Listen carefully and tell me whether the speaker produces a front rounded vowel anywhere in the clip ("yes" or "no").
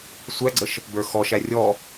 no